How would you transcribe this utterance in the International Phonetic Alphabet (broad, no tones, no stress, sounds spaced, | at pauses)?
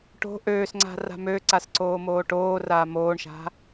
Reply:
ʈ o̤ ʔ øː s ŋ͡ǀ a̤ r a̤ m ø ǀ a s ǀ oː m oː ʈ oː r aː m oː ɳ ʃ a̤